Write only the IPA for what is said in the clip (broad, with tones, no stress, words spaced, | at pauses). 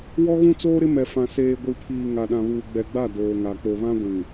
wɔ˦ɣũ˦t͡soː˦ɾɪ˦ mɛ˨fã˨ seː˨ ɡʷi˨pʰiː˨ ŋa˨ɗã˨βuː˨ ɡ͡bɛ˨ɡ͡ba˦˨ doː˨ŋa˨ k͡po˨βã˦ɡʷĩ˨